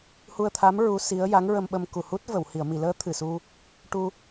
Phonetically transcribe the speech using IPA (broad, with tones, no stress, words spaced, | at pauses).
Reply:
hu˧ə̯t̪ʰa˧˥m ɹu˧˥si˧˥ə̯ ja˧˥ŋɹə˧mɓə˧m ku˨˩hu˦˥t̚və˨˩˨w hi˨˩˨ə̯mi˨˩˨ləː˧˥ t̪ʰɨ˨˩su˧ | ʈu˧